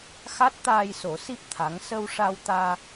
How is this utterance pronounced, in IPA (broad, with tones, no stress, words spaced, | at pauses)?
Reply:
xa˦˥t̚t̪aː˧jso˨˩˦si˦˥p̚ t̪ʰa˧˥ŋ sə˧wʂa˧wt̪aː˧